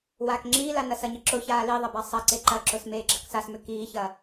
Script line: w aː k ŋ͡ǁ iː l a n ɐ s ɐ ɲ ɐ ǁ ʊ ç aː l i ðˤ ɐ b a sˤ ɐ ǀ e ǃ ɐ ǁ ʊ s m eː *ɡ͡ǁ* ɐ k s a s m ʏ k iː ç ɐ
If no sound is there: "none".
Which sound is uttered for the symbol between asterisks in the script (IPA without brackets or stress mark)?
ɡ͡ǁ